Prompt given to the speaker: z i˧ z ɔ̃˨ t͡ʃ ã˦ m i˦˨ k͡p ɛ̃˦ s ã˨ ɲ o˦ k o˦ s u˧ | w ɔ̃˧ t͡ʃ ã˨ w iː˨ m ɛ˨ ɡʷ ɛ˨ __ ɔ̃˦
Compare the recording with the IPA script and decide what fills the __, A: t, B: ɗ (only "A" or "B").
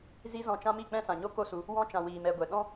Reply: B